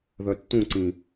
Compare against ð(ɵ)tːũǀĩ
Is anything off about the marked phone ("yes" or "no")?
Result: yes